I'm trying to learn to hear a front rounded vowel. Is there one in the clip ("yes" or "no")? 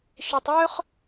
yes